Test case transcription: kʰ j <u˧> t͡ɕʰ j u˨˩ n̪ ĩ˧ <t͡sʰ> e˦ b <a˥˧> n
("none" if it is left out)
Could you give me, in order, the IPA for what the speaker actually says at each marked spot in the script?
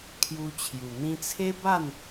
u˧, t͡sʰ, a˥˧

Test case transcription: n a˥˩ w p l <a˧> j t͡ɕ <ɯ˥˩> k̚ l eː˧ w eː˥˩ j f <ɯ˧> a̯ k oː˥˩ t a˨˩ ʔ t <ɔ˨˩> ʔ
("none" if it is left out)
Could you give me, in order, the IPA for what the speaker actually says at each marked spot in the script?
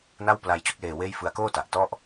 a˧, u˥˩, ɯ˧, ɔ˥˩

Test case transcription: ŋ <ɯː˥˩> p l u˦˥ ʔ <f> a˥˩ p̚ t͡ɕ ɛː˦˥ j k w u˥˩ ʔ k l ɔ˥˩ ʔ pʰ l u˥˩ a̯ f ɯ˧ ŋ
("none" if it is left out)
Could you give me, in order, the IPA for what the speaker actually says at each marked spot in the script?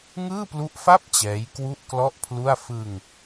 ɯː˥˩, f

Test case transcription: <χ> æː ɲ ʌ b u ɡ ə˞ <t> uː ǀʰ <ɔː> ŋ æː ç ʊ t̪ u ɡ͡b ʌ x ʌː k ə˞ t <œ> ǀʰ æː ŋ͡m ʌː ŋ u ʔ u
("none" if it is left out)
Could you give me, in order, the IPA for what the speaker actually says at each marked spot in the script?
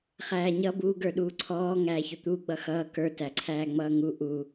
χ, ɗ, ɔː, æ

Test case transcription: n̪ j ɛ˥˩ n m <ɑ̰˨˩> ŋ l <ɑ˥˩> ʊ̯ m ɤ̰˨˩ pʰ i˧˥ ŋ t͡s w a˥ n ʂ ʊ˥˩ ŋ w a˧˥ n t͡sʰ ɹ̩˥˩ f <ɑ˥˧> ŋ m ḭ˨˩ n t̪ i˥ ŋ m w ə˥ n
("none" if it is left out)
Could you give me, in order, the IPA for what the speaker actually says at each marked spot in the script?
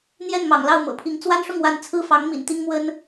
ɑ̰˨˩, ɑ˥˩, ɑ˧˥

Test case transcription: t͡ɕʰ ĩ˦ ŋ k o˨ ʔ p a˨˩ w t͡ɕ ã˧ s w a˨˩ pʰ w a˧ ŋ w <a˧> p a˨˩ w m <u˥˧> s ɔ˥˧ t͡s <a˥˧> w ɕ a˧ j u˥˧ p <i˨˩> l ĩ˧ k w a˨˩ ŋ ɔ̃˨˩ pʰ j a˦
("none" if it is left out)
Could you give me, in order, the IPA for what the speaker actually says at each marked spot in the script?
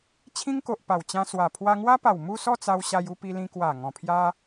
a˦, u˥˧, a˧, i˧

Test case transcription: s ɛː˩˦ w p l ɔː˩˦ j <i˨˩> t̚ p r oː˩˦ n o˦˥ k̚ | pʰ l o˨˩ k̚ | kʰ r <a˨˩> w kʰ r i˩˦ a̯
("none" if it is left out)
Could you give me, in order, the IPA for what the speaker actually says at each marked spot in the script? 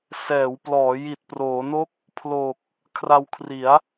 i˨˩, a˧

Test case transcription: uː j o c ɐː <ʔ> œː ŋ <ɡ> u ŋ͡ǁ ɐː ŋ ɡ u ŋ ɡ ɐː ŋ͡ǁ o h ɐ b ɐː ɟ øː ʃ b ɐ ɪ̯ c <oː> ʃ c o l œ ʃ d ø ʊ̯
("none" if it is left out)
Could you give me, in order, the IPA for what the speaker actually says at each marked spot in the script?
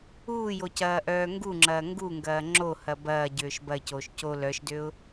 ʔ, ɡ, oː

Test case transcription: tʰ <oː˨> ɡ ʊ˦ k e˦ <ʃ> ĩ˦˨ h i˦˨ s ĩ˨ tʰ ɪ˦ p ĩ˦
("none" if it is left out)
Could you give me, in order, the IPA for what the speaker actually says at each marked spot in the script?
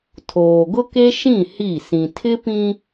oː˨, ʃ

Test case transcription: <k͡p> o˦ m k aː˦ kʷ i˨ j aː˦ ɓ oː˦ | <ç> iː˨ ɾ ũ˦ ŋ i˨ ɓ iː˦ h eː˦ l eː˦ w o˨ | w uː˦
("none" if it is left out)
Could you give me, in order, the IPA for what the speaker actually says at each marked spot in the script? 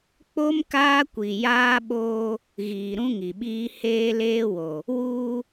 k͡p, ɣ

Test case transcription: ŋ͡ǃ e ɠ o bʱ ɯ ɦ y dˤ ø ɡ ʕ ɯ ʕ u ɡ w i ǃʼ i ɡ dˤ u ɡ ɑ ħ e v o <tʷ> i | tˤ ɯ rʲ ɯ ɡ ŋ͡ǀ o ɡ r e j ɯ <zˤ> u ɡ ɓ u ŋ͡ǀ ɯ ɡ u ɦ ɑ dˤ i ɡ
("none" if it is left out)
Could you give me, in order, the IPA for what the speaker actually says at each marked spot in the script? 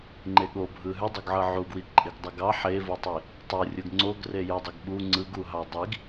tˤ, dˤ

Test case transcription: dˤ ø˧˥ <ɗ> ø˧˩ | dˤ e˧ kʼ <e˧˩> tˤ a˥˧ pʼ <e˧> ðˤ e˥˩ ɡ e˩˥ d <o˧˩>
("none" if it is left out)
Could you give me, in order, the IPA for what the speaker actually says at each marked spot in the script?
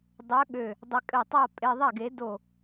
ɠ, ɘ˧˩, e˧, o˧˩

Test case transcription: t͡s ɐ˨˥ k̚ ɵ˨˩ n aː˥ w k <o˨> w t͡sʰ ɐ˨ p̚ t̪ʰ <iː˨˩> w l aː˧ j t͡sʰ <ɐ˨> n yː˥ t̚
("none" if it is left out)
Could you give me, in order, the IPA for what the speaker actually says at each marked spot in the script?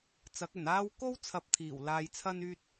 o˥, iː˨˩, ɐ˥

